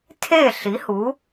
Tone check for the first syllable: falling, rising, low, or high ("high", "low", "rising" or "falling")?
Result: falling